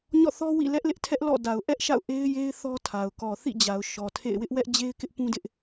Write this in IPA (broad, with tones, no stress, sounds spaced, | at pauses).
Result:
ɲ ɔ̰˦˨ θ ɔ˦ w ḭ˦˨ l ɛ˦ ʔ l ɪ˦ ʔ tʰ ɛ˦ ʔ l ɔ̰˦˨ d a˨ ʊ̯ ʔ ɛ˦ ʔ ʃ a̰˦˨ ʊ̯ ʔ e˦ ɪ̯ j e˦ ɪ̯ θ ɔ˦ tʰ a˨ ʊ̯ k ɔ˨ θ ḭ˦˨ d͡ʑ a˨ ʊ̯ ʃ ɔ˨ tʰ ḛ˦˨ ɪ̯ w ɪ˦ ʔ w ɛ˦ ʔ d͡ʑ e˦ ɪ̯ k ɪ˦ ʔ p ũ˦ d ɪ˦ ʔ